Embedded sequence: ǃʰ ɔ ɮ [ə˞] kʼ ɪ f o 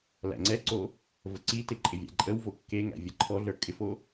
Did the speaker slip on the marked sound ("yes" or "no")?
no